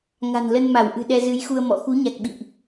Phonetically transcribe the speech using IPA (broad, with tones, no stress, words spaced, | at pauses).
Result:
ŋa̤˨˩n lə˧nma˧˩w ʔɨ̤˨˩ɗɛ˧zɨ˨˦jxu˧ə̯ mɔ̰˧˨ xu˨˦ɲa˨˩k̚ɓḭ˧˨ʔ